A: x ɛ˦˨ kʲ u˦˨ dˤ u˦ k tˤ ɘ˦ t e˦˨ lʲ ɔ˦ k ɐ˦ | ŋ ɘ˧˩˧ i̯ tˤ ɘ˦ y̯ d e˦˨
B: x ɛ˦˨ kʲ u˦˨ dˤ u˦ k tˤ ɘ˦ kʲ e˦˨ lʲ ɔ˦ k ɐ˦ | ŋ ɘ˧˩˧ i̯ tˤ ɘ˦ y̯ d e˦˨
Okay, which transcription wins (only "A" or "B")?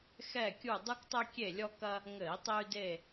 B